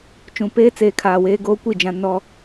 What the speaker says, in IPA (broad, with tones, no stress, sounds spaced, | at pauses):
t͡ʃ ũ˨ p eː˦ t͡s eː˨ kʰ aː˨ w eː˦ ɡ oː˦ kʷ i˦˨ d͡ʒ ã˦ n ɔ˦